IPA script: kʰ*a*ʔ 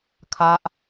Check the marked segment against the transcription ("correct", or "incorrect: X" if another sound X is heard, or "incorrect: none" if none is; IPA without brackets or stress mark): correct